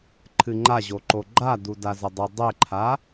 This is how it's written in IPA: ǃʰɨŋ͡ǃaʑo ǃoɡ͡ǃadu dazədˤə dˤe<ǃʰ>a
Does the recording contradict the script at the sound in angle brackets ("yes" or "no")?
no